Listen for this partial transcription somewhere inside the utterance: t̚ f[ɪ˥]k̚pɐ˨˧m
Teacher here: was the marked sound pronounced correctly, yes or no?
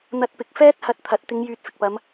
no